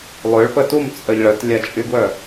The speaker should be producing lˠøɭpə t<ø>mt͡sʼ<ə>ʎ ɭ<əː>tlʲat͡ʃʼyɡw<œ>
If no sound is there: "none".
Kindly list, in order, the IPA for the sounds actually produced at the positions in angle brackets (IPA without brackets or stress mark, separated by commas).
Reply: u, ə, ə, œ